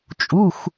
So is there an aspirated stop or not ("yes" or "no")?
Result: no